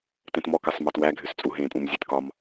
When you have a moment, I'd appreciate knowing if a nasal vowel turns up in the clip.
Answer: yes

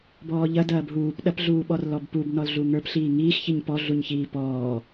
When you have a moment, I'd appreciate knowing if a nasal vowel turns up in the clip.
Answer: no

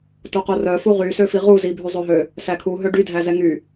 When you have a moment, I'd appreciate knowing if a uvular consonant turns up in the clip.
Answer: yes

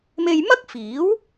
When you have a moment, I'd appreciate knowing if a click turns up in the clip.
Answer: no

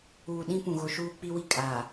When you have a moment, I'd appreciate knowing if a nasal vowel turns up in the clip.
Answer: yes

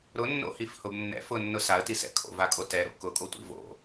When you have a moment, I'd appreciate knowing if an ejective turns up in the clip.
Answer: yes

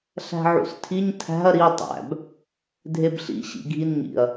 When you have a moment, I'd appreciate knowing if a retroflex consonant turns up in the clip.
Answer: no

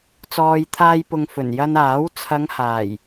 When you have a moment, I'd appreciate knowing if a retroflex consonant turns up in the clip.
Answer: no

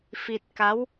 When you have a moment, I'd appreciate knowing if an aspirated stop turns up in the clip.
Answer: no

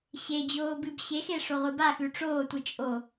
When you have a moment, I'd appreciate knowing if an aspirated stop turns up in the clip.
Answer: no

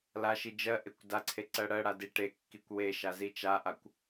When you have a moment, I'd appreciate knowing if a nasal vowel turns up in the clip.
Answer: no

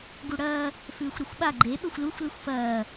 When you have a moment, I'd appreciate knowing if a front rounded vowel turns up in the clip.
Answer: no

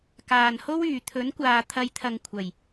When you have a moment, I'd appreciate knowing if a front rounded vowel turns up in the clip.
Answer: yes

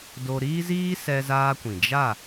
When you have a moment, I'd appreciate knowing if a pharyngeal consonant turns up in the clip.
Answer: no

